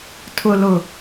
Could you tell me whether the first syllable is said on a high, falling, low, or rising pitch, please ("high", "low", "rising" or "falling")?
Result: low